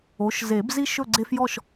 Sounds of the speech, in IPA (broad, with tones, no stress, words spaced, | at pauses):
o˩˥ʃze˨˩˦b zi˦ ʃɵ˥˨ɡ͡ǀe˦fjɔ˥˨ʃ